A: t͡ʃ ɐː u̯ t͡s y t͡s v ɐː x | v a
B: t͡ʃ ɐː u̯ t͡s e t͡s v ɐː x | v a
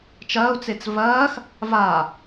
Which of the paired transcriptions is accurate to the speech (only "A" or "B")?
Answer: B